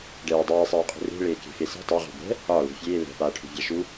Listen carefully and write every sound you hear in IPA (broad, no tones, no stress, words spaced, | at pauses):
ɖɛːdˤeːsˤɛːqʼṳ re̤ ɭeːke̤fese̤ tˤɛʁṳ bɛ̤ | ɒ lṳfʲeː lɛ̤paːʈʰṳvʲa ʃu